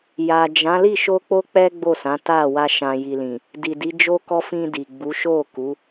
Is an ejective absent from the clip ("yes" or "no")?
yes